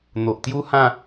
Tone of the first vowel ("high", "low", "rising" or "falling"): low